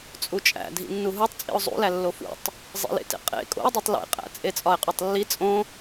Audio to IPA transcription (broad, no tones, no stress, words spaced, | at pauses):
t͡sʼut͡ʃʼæ̰ dʱḭnːuɦutˤ t͡sʼḭʊ̯zˤṵlælːo fṵtˤ | zˤḭlḛtḛ qʼḛ kʼo̰ɪ̯dˤetˤ lḛqʼæ̰ t͡sʼet͡sʼɒɪ̯qʼotˤlːi t͡sʼõ